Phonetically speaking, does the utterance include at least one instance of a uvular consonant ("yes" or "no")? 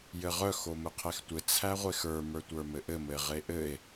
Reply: yes